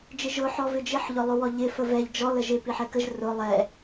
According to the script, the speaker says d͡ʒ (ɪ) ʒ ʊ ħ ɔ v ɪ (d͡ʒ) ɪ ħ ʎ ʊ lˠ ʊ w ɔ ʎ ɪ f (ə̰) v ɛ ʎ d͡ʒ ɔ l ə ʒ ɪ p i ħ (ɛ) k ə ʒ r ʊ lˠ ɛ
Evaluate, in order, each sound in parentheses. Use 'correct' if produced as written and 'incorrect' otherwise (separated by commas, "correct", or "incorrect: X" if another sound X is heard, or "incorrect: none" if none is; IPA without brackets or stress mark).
correct, correct, incorrect: ə, correct